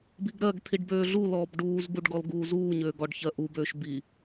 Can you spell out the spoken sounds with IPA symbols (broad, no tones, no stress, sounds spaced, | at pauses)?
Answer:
b i ɡ ɾ ɜ ɡ t̪ʰ i ɖ b øː ɮ u l ɔː b ɖ uː z b u ɖ ɡ ɔ l ɡ uː z uː ɲ øː ɡ ɔ ɖ ç ɜ ʔ u b øː ʃ b i